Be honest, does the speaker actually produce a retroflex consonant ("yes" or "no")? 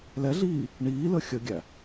yes